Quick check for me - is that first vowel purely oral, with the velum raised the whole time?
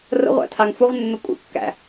yes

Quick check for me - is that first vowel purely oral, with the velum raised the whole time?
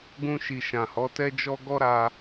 no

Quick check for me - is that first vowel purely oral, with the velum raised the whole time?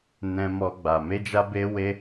no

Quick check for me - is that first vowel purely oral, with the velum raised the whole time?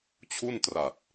yes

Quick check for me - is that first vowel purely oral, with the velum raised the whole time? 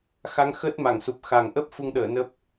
yes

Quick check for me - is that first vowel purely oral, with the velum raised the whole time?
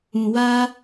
no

